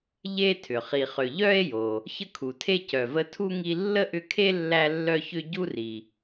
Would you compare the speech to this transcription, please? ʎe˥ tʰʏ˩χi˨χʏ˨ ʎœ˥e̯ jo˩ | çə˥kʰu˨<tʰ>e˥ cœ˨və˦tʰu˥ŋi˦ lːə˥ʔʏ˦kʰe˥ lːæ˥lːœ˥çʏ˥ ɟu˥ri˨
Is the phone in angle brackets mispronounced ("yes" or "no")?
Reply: no